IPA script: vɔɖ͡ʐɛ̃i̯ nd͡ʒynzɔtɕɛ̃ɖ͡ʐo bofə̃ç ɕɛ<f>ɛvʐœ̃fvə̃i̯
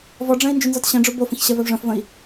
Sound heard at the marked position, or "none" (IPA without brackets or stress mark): v